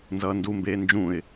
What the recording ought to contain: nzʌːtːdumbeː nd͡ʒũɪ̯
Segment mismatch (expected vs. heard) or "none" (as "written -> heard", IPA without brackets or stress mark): tː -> n